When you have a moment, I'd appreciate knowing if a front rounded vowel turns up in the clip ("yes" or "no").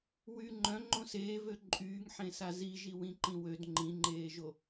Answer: yes